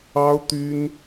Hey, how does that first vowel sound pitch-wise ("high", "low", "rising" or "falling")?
high